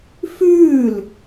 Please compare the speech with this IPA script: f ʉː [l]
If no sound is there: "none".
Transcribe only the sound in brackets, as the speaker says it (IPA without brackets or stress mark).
l